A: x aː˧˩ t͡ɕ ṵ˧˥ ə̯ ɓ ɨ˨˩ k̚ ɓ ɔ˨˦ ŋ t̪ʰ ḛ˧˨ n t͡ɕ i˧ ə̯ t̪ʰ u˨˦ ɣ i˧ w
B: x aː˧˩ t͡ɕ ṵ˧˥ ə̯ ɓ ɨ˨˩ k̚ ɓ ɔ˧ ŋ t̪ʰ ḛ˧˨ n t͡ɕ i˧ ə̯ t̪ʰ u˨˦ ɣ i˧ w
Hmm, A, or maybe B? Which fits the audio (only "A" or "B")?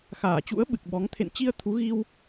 A